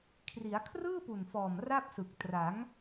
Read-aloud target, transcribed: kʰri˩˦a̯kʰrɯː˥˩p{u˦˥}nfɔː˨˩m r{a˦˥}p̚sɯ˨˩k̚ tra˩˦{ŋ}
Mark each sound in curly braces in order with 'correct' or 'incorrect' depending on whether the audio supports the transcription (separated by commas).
incorrect, incorrect, correct